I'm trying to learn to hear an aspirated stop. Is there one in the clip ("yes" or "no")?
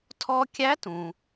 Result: yes